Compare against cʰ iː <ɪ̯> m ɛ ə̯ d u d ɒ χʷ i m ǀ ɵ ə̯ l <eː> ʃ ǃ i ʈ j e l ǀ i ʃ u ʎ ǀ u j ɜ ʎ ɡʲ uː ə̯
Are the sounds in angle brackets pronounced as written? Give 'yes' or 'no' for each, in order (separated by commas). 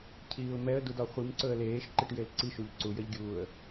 no, yes